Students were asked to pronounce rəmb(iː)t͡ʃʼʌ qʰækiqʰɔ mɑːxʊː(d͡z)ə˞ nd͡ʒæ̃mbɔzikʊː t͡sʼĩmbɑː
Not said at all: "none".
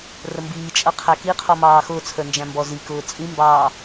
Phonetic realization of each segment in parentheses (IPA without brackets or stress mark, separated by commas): iː, t͡sʰ